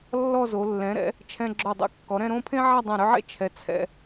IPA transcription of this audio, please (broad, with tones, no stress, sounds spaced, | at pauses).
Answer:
lː ɔ˥˧ z o˩˧ lː ɛ̃˩˧ ɾ ɛ̰˩˧ | t͡ʃʰ ɛ̃˧ ɡ͡ǁ o˧˩ dˤ ḛ˥˧ kː ɔ˩˧ ɾ ɛ̃˥˧ ɾ õ˥˧ pʰ ẽ˥ ʕ a˥˧ dˤ ɛ̃˧˩ ɾ ʏ˥˧ ʕ ḛ˥ t͡ʃʰ ɛ˩˧ t͡sʰ ɛ̰˧